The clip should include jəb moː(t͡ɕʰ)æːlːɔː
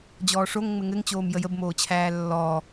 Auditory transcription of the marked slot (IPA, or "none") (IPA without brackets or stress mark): t͡ɕʰ